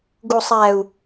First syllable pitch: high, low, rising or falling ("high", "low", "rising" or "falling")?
low